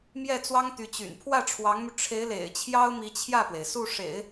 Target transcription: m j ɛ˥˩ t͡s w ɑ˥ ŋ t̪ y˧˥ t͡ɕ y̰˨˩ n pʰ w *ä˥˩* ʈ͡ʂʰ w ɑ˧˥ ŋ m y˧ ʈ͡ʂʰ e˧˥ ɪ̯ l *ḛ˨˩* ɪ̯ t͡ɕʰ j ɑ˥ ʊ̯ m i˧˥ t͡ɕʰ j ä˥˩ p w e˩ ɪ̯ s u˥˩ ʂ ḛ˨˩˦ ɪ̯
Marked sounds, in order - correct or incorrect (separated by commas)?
correct, correct